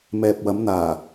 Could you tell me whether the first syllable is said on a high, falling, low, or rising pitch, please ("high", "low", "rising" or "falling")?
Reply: low